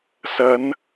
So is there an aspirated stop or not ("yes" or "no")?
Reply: no